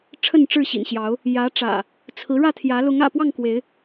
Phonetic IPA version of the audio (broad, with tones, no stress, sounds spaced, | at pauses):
ʈ͡ʂʰ ə˥˨ n ʈ͡ʂ ɻ̩˥˨ ɕ ḭ˨˩ n ɕ j ɑ˨˦ ʊ̯ | j ä˨˦ ʈ͡ʂ ä̰˨˩ | t͡sʰ ɹ̩˨˦ ɻ ä˥˨ t̪ʰ j ä˨˦ l ʊ˨˦ ŋ ä̰˨˩ p w ɑ˥˨ ŋ k w e˨˦ ɪ̯